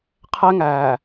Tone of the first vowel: high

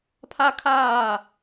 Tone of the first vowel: high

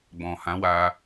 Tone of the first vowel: low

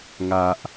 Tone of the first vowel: low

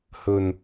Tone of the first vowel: low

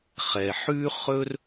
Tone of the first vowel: low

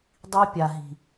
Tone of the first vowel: high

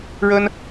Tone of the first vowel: high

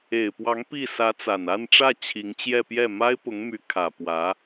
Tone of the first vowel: low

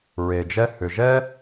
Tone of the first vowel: low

